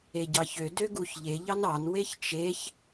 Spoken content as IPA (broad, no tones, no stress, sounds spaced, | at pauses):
e ɟ ɑ ç ø d ø ɡ u ç ʎ e ʎ ɑ n ɑ n w e ç t͡ʃ e ç